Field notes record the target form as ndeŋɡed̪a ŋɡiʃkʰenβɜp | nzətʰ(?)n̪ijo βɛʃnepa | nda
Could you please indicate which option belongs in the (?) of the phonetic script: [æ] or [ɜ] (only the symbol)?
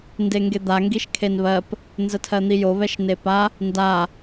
ɜ